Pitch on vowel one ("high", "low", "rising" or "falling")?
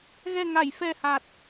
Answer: low